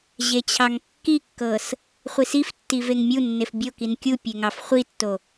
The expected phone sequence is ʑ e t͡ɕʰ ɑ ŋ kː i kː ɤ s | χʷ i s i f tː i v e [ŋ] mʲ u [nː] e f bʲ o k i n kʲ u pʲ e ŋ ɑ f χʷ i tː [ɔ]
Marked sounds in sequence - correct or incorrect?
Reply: correct, correct, incorrect

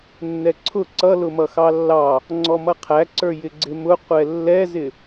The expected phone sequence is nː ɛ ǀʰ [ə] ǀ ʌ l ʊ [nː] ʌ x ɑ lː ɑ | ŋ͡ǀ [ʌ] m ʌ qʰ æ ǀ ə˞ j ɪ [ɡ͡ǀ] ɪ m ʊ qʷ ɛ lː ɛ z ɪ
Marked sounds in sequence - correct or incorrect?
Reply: incorrect, incorrect, incorrect, correct

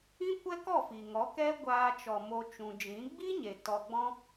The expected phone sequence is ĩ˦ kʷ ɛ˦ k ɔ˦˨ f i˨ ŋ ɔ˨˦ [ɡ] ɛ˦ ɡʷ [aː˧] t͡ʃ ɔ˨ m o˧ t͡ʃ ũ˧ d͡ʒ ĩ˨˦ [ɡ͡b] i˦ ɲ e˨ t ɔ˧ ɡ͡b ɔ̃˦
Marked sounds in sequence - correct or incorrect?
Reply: incorrect, correct, correct

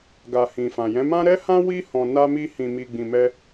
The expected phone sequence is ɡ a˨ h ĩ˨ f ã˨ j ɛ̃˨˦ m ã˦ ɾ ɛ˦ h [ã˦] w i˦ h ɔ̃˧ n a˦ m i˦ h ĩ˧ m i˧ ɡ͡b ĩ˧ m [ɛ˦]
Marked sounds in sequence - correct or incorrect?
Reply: correct, correct

